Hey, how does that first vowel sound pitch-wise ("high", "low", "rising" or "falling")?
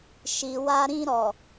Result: low